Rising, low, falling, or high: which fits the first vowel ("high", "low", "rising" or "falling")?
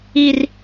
high